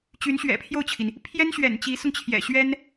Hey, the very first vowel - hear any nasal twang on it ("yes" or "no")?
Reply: no